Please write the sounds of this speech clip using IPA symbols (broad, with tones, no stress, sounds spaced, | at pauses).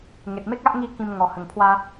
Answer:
ŋ e˨ t̚ m e˦ k̚ a˦ ʔ ŋ i˥˧ k ĩ˧ m ŋ ɔ˨˩ h ə˨˩ ŋ pʰ w a˧